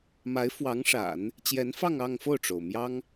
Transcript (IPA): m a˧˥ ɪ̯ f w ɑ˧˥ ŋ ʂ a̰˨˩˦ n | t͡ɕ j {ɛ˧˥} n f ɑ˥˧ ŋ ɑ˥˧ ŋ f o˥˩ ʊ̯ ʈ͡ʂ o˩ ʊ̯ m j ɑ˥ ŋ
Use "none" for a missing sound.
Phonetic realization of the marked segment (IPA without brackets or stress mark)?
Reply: ɛ˧˥